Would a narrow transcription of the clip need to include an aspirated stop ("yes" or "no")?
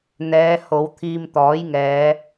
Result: yes